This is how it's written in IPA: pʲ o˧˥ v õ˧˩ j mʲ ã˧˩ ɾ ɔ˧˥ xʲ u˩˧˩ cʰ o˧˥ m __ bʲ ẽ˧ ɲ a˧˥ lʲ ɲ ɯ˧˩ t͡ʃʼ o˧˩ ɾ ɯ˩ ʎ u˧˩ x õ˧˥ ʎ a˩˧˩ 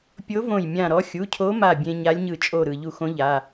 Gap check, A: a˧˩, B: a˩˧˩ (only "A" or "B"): A